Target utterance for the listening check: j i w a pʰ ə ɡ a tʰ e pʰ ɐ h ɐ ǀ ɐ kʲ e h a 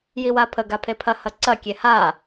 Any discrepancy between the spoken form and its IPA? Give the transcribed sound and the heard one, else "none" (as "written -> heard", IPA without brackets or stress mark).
tʰ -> pʰ